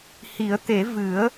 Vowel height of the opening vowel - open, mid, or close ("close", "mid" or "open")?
close